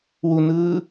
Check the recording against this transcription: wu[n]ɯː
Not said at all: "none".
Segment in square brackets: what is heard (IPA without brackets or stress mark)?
n